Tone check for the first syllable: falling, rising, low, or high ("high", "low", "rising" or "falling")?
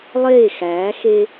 falling